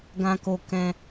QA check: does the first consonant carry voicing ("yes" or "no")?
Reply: yes